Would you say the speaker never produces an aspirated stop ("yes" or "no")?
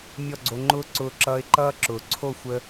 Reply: no